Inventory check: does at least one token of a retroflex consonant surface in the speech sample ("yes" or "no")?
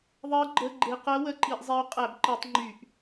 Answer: no